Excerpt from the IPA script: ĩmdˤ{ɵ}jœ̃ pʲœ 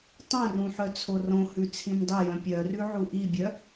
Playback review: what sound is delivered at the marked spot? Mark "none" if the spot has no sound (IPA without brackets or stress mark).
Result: ɵ